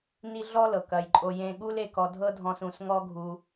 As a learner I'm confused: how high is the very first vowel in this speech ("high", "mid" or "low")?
high